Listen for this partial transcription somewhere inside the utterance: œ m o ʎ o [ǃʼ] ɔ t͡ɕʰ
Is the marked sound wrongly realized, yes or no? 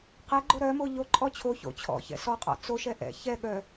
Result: no